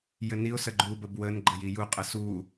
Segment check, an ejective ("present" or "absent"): present